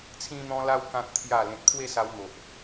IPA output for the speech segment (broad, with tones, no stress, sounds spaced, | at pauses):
t͡sʰ ĩ˧ n̪ ɔ̃˧ l a˧ w k ã˨ k̚ t̪ʰ j a˨˩ l ẽ˨ t̚ pʰ w e˥˧ s a˧ w n̪ o˨ ʔ